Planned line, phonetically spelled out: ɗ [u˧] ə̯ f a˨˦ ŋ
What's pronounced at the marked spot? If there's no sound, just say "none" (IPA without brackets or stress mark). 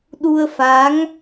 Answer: u˧